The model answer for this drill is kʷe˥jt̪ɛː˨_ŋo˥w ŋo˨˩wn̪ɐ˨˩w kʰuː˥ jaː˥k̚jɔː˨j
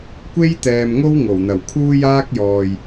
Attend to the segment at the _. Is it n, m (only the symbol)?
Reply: m